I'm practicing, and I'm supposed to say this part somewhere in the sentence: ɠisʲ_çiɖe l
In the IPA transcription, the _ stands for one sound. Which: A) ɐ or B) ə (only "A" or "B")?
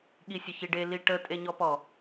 B